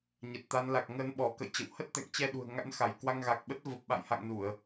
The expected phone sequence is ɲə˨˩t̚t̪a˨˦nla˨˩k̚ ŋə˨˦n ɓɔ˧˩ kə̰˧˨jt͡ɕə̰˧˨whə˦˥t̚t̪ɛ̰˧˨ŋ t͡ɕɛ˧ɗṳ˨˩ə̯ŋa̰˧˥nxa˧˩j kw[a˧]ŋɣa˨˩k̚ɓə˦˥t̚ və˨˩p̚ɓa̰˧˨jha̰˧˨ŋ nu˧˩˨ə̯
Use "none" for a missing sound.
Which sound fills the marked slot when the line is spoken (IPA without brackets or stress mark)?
a˧